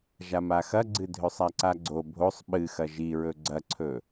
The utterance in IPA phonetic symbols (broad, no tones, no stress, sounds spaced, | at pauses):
ʒ a m a x ɐ ɡ͡ǀ ɨ dʱ ɵ sˤ a ǀ a ɡ͡ǀ o bʱ o sˤ ɓ ɨ x ɐ ʒ i ɹ ɵ ɡ͡ǀ ɐ ǀʰ ɵ